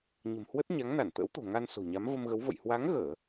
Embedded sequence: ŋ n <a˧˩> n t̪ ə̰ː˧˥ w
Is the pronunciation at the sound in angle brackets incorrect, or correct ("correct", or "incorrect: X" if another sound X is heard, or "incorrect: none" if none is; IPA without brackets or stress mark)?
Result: correct